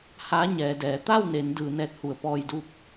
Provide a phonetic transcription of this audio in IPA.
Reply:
ha˧˥ ɲɛː˩˧dɛː˩˧ t̪a˥˨wne˩˧n dɯː˩˧nɛː˧t̚hu˩˧ə̯ pɔː˧jdu˥˨p̚

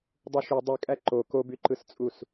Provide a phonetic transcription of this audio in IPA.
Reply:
dˤɯʃy dˤykʼæ ǃo kobyǃɯst͡sʼus

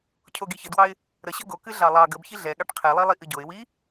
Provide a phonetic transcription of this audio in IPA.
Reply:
cʰoɡiçədwɑɪ̯ | ɾəɕə ɡokɨ ɮɑlˠɑ ɡəb çiɮɛɠɑʈ qʰɛlˠilˠi ʔɨɟoɪ̯ wi

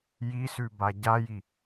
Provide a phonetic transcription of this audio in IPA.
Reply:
jisʉba ɟaji

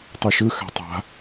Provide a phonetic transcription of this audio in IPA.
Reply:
tˤuʃɯ xa̤tˤa̤

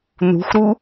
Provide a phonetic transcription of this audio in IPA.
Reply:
nṳxʷɾu

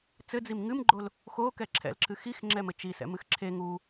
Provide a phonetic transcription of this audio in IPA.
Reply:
t͡sɘd͡zim ŋɨmɡ͡ǃol | xokɛ ǁʰɛ̰lǁɨxix ŋ͡ǁɛmɘt͡ʃisɛ̰ mɨxǁʰe ŋu

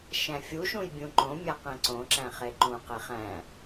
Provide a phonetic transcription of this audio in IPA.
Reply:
ʃæ̃fʲuʃũj bʲũǃõmʲæ qẽǀõǁæ̃ χeǃũqe χæ̃

